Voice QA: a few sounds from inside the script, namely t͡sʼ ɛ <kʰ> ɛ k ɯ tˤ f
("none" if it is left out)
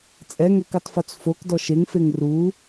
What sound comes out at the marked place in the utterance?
ŋ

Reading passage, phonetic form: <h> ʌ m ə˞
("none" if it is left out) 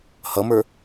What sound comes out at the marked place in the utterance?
h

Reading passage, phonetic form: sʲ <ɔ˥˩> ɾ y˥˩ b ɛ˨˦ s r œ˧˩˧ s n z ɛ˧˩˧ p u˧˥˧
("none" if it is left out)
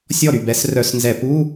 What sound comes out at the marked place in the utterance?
ɔ˥˩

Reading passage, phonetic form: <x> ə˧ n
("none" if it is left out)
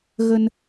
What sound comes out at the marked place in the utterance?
ɣ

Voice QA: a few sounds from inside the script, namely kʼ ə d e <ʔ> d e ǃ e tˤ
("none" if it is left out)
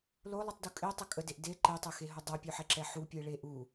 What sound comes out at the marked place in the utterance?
ʔ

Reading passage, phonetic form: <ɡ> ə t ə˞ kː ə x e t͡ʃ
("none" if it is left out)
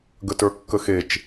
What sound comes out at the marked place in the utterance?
ɡ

